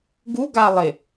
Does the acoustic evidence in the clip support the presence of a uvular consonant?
no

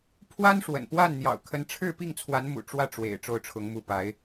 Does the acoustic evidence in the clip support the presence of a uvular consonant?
no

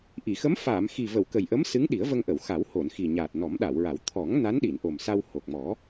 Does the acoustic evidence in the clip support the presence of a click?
no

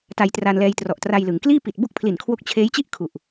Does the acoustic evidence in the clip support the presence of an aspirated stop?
yes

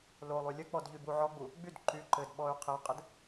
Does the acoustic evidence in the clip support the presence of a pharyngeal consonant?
yes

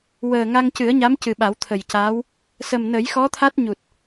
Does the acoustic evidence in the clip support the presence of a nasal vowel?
no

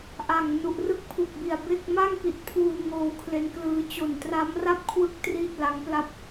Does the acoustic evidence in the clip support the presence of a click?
no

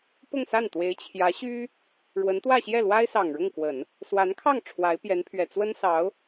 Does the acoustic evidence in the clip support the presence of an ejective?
no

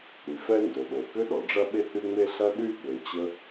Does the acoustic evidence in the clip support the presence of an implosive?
yes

